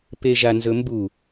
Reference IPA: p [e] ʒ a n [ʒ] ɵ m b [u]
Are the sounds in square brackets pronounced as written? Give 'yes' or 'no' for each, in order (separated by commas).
yes, no, yes